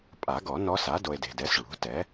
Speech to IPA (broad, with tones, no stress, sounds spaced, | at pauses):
pʼ a˨˩˦ ɡ ɔ˨˩˦ n ɔ˧˥ s a˩˥ d o˨ e̯ d e̤˨ d ɛ˩˥ s ɭ ṳ˩˥ t ɛ˩˥